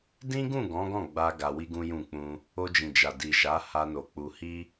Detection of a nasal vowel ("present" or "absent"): present